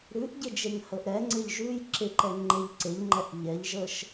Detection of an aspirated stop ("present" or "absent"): absent